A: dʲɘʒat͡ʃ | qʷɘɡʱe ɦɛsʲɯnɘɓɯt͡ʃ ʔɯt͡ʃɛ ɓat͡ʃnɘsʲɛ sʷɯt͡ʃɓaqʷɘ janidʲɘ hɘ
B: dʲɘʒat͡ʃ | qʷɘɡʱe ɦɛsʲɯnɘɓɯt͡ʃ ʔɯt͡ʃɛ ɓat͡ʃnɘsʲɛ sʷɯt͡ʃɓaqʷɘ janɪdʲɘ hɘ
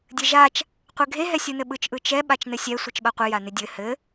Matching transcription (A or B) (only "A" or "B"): B